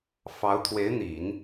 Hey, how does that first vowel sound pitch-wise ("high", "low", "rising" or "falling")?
rising